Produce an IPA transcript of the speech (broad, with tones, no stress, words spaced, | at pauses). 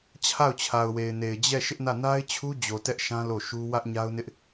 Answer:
t͡ɕʰa˦˨ʊ̯t͡ɕʰa˨ʊ̯we˨ɪ̯ne˨ɪ̯ d͡ʑɛ˦˨ ʃɪ˦ʔnä˦˨ na˦ɪ̯t͡ɕʰu˦d͡ʑo˨ tɛ˦ʔʃã˦ lo˦˨ʃu˦ wä˦ʔɲa˦ʊ̯nɪ˦ʔ